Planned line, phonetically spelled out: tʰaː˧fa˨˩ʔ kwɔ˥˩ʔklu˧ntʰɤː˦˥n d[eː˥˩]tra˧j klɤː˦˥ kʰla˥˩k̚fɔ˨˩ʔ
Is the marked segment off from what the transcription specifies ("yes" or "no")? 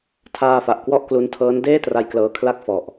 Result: no